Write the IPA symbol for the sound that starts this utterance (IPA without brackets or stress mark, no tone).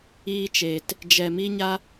iː